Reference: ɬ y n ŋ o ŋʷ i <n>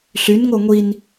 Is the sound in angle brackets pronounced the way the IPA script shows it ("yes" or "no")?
yes